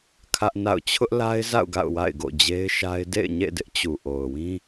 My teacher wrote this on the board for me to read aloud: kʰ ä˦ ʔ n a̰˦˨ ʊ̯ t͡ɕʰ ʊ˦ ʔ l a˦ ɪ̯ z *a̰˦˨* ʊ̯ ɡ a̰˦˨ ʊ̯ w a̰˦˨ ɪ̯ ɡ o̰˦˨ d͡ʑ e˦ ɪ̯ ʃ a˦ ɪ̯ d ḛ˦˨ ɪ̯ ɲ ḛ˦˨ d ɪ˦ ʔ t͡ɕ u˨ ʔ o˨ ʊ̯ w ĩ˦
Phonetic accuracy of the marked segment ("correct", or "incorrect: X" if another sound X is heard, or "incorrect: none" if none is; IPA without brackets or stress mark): correct